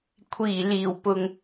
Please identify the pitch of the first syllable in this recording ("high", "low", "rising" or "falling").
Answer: low